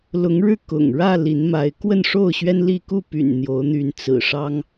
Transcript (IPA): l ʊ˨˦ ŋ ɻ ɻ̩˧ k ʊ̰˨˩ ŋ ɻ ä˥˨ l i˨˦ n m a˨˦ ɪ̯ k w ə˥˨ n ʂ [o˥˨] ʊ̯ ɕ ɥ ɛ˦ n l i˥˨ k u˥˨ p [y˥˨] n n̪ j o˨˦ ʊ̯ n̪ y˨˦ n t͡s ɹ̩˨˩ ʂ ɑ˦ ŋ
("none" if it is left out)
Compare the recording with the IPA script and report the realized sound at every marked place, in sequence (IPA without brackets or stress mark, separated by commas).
o˥˨, y̰˨˩